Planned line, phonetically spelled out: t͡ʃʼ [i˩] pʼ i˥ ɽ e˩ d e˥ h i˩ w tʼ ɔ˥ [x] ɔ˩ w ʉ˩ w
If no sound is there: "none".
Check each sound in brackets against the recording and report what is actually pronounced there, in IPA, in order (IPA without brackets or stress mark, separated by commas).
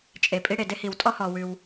e˩, h